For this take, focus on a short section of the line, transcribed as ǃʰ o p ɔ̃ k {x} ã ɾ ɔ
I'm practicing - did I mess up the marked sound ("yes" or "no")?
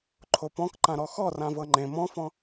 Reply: yes